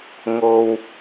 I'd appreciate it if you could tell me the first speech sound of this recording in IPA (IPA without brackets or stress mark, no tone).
ŋ